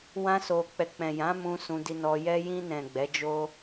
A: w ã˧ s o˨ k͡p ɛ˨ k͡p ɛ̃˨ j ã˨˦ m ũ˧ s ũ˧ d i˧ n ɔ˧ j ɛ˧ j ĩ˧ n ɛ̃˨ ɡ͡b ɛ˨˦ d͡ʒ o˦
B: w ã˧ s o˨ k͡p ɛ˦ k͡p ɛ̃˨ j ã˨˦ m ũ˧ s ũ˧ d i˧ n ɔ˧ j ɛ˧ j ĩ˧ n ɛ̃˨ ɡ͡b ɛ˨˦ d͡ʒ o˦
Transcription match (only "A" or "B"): A